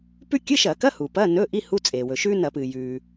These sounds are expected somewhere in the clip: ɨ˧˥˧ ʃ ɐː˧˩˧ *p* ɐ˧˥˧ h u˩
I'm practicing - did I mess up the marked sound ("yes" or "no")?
yes